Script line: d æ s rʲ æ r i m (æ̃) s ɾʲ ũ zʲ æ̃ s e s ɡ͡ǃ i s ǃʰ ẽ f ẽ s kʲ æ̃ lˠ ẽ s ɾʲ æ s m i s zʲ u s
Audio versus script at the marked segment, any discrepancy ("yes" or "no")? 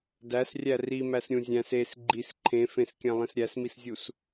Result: yes